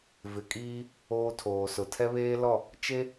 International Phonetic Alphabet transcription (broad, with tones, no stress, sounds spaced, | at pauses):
v ɪ˨ kʼ iː˦ | oː˦ tʰ oː˨ s ʊ˨ tʰ ɛ˦ β eː˦ l ɔ˦˨ | t͡ʃ e˦